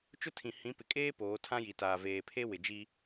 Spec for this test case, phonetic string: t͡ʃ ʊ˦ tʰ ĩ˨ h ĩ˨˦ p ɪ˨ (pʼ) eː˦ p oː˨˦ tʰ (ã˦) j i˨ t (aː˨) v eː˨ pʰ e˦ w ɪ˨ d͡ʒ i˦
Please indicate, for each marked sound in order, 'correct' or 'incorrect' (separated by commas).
incorrect, correct, correct